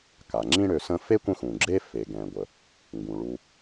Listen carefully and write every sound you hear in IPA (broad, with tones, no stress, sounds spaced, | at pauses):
k a˩ ŋ͡ǁ ĩ˦ ɽ ø˨ s ə̃˦ f e˥ kʷ ə̃˦ x ũ˩ ɡ͡ǁ e˥ f e˩ ɡ ɛ̃˩ ɡʷ ə˩ | ŋ ɡ ũ˩ ɭ u˨